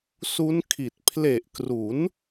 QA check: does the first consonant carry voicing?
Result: no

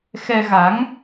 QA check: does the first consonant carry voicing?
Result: no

